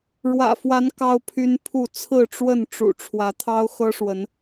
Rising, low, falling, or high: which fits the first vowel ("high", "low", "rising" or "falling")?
low